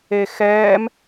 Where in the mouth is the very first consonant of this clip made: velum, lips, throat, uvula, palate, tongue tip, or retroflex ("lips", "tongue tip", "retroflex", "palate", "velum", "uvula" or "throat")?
velum